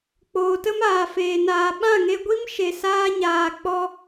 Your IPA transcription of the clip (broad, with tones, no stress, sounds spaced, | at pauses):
k͡p oː˨ t ə˦ m aː˨ f eː˨ n aː˨ ɓ ã˦˨ ŋ e˧ ɡʷ i˦ m ʃ e˨ s aː˧ ɲ aː˨ k͡p ɔ˧